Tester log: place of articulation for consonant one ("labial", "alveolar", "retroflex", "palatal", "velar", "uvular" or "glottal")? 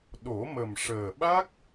alveolar